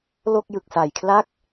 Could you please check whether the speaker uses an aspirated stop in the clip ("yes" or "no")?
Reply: yes